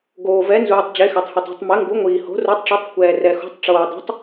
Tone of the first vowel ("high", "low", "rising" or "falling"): low